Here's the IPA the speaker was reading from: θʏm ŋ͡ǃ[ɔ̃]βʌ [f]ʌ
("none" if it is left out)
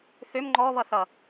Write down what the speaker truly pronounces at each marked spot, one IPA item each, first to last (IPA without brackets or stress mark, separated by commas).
ɔ, θ